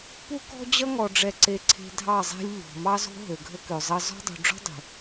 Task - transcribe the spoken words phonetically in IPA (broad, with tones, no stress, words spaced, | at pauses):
pu˦kɔ̤˦d͡ʑʌ˦ ŋɔ˨ɖ͡ʐɛ˨ ǀe˨ǀʰe̤˨ dʱɑ˦˨zˤe̤˦lʲ ʎɔ̤˨ mɑ˦zo̤˦ ɦø˨ɡʱə˦kø˨zˤʌ˦ zɔ̤˦dˤṳ˨ ɖ͡ʐɔ̤˦dˤe̤˨